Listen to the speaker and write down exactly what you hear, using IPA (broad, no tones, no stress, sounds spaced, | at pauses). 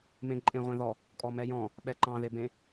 m ẽ ǃʼ ẽ ʁʷ ẽ ð ɔ | kʼ ɔ m ɛ j ɔ̃ | ɓ ɛ ǃ ɑ̃ ð e b ẽ